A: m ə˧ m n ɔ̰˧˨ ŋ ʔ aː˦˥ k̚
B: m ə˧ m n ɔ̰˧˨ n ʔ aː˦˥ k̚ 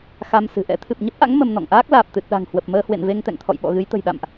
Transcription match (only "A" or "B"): A